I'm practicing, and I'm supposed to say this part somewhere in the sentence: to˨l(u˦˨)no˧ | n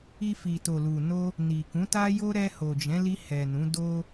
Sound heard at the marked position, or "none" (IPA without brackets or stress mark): u˨